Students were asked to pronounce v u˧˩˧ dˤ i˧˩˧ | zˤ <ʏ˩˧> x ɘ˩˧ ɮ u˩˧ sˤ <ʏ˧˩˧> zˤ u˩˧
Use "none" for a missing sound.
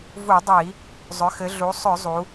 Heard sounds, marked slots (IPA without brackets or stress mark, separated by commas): ʏ˩˧, ʏ˧˩˧